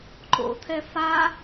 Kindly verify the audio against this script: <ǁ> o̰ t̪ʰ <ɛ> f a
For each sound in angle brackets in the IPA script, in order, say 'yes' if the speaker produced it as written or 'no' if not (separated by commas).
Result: no, yes